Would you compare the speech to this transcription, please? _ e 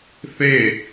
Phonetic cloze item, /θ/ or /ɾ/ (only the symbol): θ